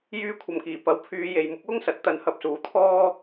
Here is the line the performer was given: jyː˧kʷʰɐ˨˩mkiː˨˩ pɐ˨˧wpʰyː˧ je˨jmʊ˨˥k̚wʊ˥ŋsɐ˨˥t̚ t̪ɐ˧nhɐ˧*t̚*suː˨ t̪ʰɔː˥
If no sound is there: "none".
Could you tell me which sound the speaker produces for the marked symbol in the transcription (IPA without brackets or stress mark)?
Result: p̚